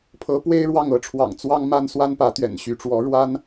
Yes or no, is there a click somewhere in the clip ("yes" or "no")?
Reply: no